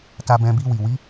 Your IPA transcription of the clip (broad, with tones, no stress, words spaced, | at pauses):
ta˧bɛ̃˧ bi˧wi˨ wi˨˦